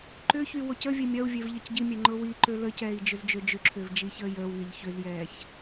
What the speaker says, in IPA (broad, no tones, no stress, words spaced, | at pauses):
ǃʏçy wocəvʲe mʲɐu̯vʲev ʎɐcɟimʲɛ ŋ͡ǃʊwiǃø ləcɛːi̯ d͡ʒʏzd͡ʒød͡ʒʏǁʰʏːv d͡ʒiçəːjəːwŋeʎ çʏzjɛːç